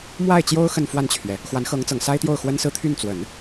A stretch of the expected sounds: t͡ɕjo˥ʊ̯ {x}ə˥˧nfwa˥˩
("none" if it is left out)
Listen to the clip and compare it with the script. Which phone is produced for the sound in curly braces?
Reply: x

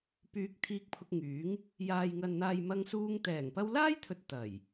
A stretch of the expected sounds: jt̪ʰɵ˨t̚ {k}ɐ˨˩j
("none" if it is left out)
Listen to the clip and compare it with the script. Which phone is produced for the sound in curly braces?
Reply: t̪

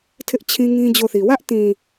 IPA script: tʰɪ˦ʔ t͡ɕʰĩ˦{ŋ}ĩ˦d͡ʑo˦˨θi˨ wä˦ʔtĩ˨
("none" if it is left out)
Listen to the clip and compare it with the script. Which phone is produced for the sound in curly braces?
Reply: ŋ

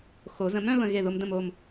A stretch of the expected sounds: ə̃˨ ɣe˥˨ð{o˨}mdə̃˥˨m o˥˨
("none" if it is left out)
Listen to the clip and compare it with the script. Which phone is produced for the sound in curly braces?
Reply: o˦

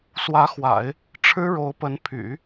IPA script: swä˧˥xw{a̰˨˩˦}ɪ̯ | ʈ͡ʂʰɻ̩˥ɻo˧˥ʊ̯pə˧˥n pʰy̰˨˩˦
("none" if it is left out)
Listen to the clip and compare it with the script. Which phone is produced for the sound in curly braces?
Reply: a̰˨˩˦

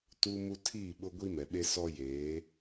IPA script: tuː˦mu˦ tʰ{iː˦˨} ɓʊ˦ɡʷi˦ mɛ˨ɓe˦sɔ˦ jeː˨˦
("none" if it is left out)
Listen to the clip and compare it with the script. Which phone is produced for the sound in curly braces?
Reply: iː˦˨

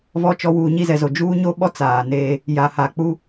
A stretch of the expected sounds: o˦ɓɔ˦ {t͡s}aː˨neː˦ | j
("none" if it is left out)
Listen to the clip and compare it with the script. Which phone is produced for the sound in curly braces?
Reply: t͡s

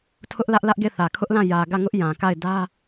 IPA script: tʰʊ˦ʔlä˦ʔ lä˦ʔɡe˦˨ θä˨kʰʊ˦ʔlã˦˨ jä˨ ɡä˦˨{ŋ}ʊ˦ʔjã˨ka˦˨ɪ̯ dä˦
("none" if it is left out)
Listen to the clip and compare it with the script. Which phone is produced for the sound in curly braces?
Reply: ŋ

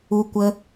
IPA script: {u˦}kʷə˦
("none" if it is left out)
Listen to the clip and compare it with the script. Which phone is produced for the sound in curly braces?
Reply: u˦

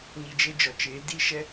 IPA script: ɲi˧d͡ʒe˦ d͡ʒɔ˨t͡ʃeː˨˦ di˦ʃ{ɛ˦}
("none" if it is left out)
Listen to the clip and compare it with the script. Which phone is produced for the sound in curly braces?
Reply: ɛ˦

